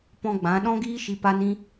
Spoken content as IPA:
pɔ̃˧ ɡ͡bã˨˦ ɗɔ̃˦ɡiː˦ʃi˧ pa˦nĩ˦

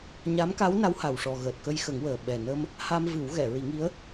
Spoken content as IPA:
ɲa˧˥mka˧˥wna˧˥wha˨˩w ʂɔ˨˩ɣəː˨˩t̚ kə˧jxə˨˩˦ŋwəː˨˩ ɓɛ˨˩nə˧m | ha˧mvɨ˨˩˦w ɣɛ˨˩˨ɹi˨˩˦ŋi˧˥ə̯

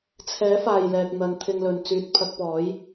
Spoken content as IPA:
t͡sʰɛː˨˥faː˨jlɛː˨k̚ n̪ɐ˨˧n t̪ʰɪ˧ŋlɵ˨nt͡syː˧t̚ pʰɐ˧k̚pɔː˨˥j

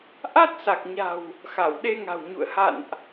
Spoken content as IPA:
ʔa˦˥t̚sa˨˩k̚ɲa̤˨˩w | xa˧˩wɗe˧ŋa̤˨˩wɲṵ˧˨ə̯ ha̰˧˨nʔ

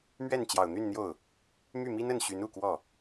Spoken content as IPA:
mɥɛ˥˩nt͡ɕjɑ˨˩ʊ̯n̪y˥˧nn̪jo˥˩ʊ̯ | my˥˩mi˥nə˥˩n ɕy˧˥nu˨˩ kwɔ˥˩

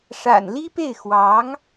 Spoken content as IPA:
ʂa̰˨˩nli˥pe˥˩ɪ̯ xwɑ˧˥ŋ

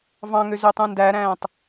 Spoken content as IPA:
vɑ̃ŋø zøtˤũndæɾæ̃ːtˤ

